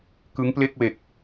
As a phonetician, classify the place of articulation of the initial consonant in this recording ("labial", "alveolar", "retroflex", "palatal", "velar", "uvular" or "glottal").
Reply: velar